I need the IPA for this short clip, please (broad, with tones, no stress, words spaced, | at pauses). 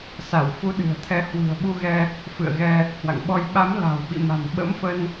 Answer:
sa˧˩wfu˨˦ɗɨ̤˨˩ə̯t̪ʰɛ˨˦ hwɨ̤˨˩ə̯ɓu˧ɣɛ˧ | fɨ̰˧˨ə̯ɣɛ˧ | hwa̰˧˨ŋɓɔ˧j ɓa˨˦m la̤˨˩wɓḭ˧˨ma̤˨˩n ɓə̰˧˥mfə˧n